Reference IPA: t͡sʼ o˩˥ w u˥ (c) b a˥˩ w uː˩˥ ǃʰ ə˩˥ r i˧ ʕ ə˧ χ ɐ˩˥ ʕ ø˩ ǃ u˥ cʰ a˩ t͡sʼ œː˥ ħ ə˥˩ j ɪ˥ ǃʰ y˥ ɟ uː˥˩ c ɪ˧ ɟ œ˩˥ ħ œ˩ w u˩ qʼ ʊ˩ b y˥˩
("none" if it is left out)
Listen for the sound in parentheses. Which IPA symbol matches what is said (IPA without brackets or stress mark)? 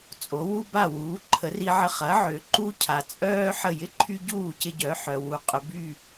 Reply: none